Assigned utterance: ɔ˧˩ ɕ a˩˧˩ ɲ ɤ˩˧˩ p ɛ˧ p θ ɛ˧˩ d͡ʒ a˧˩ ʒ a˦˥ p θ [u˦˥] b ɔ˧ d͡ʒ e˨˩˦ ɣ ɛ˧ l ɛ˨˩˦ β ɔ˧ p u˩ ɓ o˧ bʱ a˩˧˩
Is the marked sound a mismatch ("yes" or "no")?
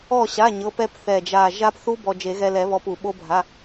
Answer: no